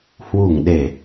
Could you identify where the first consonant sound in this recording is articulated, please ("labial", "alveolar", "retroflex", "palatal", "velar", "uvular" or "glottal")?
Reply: glottal